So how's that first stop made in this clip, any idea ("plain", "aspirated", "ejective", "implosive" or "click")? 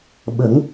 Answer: implosive